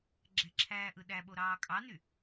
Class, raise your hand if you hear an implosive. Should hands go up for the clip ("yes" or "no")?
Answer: yes